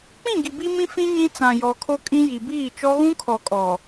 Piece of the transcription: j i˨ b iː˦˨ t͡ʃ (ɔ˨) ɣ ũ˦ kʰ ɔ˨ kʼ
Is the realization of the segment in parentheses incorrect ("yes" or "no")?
yes